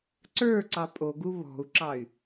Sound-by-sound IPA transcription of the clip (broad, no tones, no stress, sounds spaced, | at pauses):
ǀ ə˞ ǀ ɑ pʼ o ɡ u β ɔ̤ u̯ ǁ ɑ y̯